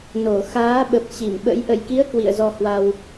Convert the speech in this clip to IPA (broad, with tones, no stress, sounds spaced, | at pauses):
n o˧˩ x aː˨˦ ɓ ə˨˩ p̚ t͡ɕ i˧˩ m ɓ ə̰˧˥ j ʔ ə̰˧˨ j k i˨˦ ə̯ k w ḭ˧˨ ə̯ z ɔ˧ h w a˧ w